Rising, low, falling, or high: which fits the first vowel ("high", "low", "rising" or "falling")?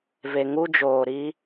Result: low